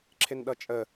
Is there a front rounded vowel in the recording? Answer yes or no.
no